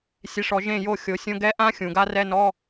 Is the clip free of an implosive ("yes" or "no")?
yes